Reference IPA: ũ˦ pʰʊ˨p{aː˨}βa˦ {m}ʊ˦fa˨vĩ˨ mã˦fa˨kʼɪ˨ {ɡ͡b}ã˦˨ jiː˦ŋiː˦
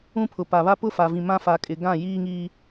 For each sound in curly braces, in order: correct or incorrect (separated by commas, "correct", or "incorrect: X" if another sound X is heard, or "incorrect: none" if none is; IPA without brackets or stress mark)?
incorrect: a˨, incorrect: p, incorrect: ɡ